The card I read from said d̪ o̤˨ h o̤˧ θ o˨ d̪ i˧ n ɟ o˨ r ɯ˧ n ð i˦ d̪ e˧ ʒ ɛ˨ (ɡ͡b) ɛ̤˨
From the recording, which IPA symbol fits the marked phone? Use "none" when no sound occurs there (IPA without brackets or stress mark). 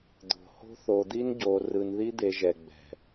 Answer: ɡ͡b